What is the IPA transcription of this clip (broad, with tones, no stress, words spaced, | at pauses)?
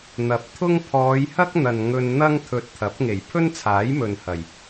n̪ɐ˨˥p̚t̪ʰʊ˥ŋ pʰɔː˨˧jhɐ˥k̚ n̪ɐ˨nŋɵ˧nn̪ɐ˥ŋ t̪ʰɵ˧t̚t̪ʰɐ˨˥p̚ ŋe˨˩jpʰɵ˥nt͡sʰaː˨˥j mɵ˨nhɐ˨˩j